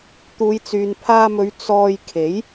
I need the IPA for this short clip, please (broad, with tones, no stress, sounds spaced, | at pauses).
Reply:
t̪ uː˨˧ j t͡s yː˨ n pʰ aː˧ m ɵ˨˧ ɥ t͡s ɔː˧ j kʰ e˨˥ j